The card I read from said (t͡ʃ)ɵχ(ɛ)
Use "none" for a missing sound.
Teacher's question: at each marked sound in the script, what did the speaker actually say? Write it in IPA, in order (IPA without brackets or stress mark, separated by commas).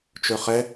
t͡ʃ, ɛ